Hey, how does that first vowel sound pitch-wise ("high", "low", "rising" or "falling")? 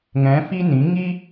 rising